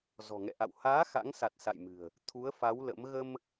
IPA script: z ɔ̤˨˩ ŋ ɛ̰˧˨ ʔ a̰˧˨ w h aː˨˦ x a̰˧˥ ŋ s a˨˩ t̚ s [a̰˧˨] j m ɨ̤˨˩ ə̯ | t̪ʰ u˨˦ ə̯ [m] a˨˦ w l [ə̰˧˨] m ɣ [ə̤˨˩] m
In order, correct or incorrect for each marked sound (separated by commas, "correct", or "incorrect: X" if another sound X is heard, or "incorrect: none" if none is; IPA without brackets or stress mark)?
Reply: correct, incorrect: f, incorrect: ə̰˧˥, incorrect: ə˧